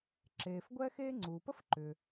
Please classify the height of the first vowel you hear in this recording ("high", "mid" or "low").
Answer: mid